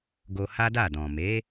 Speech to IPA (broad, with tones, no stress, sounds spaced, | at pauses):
ɡ o˧ h a˦ d a˦˨ d ɔ̃˨ m e˨˦